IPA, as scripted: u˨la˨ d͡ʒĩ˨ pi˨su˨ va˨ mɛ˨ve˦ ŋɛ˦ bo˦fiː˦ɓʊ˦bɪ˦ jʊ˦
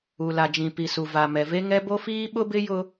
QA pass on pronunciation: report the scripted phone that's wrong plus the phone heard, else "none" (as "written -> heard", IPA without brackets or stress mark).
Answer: none